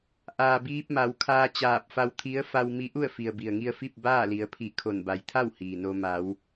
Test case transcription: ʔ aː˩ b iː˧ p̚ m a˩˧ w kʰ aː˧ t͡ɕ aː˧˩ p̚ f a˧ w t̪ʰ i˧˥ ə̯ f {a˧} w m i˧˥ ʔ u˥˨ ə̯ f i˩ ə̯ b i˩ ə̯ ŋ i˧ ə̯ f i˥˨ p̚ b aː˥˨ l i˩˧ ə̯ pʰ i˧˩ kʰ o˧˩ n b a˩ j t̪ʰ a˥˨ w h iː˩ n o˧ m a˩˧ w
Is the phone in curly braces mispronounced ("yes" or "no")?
no